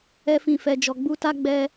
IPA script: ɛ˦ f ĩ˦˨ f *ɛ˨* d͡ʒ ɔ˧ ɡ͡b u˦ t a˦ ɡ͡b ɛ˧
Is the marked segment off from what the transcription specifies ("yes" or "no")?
yes